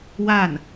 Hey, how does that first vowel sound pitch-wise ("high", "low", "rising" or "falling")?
falling